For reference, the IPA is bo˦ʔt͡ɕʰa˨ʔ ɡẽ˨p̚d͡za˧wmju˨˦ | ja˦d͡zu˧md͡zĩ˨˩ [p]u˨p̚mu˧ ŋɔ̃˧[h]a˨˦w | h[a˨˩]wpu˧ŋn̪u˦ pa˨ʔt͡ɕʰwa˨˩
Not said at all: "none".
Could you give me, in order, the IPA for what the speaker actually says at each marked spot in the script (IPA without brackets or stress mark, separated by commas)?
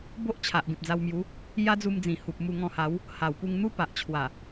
h, h, a˨˩